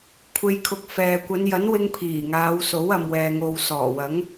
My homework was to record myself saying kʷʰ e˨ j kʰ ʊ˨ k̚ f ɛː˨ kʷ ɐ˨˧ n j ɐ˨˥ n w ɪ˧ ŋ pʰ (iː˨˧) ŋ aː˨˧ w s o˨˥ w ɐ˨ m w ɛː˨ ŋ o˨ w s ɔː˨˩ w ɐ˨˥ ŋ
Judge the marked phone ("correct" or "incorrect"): incorrect